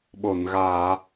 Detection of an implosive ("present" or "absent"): present